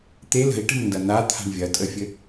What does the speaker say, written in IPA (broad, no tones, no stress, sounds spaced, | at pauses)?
t̪ e l ə̤ i̯ ʈ ə̤ m n d ɐ n̪ a t̪ʰ a̤ ɳ vʲ ɐ tʼ ə fʲ ɘ